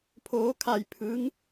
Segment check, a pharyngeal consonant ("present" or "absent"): absent